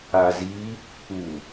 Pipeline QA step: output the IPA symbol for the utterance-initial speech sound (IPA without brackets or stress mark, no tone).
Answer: a